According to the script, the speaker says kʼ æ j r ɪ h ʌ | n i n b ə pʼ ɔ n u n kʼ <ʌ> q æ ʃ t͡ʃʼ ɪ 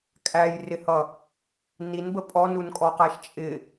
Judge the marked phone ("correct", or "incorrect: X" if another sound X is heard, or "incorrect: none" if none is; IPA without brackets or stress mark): incorrect: ɔ